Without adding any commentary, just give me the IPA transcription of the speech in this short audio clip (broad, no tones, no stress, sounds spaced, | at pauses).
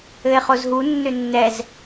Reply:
ɘ e̯ χ o z ɦ u nː ø nː ɛ z